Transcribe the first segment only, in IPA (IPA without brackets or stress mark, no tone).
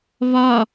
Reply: β